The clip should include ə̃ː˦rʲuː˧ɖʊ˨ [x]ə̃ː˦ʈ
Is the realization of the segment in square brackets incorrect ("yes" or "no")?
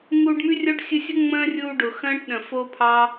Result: no